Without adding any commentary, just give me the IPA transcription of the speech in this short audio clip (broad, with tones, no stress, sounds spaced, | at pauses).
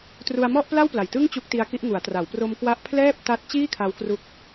t r u˧ a̯ m ɔ˥˩ ʔ p l a˥˩ w p l a˨˩ j t ɯ˥˩ ŋ t͡ɕ u˦˥ k̚ t i˦˥ a̯ k i˦˥ ʔ ŋ u˩˦ a̯ t r a˩˦ w p r o˧ m k w a˦˥ ʔ pʰ l ɛː˥˩ p̚ t a˦˥ t̚ t͡ɕ iː˥˩ kʰ a˦˥ w k r u˦˥ k̚